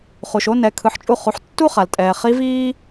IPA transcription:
χ u˩ ʃ o˧˥ n ɛ˩˧ kʰ ɯ˩˧ ħ t͡ʃʼ u˧ χ u˩˧ ħ tː u˥ χ a˩ l tʼ ɛː˩ χ i˧˥ v iː˥

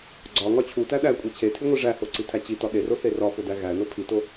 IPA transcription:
ɡ͡ǀ ɒ ŋ ɒ t͡ɕʰ u t æ ɗ æ kʷʼ e t͡ɕʰ e tʰ i ŋʷ i ʐ æ h o ǀ i tʰ æ t͡ɕ i t ɒ ɗ e r o θ e r ɒ f o d æ ɣ æ n o pʰ i t o

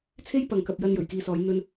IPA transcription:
t͡sʰ e˥ j p ɐ˨ ŋ k ɐ˨ p̚ j ɐ˧ n j ɵ˨˩ ɥ k iː˨ s ɔː˨˧ j n̪ ɵ˧ n

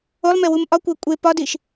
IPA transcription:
o lˠ m e w u m ʔ ɒ kʷ æ kʷʼ e p ɒ d i ʃ

